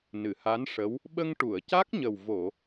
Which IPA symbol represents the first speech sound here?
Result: n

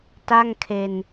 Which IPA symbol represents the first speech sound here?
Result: t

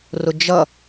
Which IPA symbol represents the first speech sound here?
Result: r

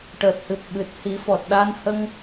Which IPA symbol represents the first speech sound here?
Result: ʈ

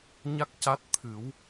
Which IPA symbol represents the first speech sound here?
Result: ɲ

